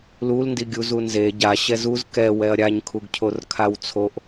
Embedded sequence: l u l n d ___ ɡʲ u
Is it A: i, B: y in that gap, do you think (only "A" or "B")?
A